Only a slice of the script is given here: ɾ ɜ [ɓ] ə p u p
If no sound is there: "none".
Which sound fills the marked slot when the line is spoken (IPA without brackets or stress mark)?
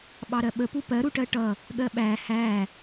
ɓ